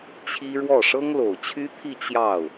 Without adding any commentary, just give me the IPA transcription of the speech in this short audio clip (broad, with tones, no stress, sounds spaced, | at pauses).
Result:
t͡ɕʰ i˥ ɻ w ɔ˥˩ ʂ ɤ˥ ŋ l o˨˩ ʊ̯ t͡ɕʰ y˥ t̪ʰ i˥˧ t͡ɕ j ɑ˥˩ ʊ̯